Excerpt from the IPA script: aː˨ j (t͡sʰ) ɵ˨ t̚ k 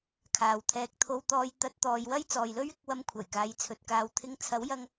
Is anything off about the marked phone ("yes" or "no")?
no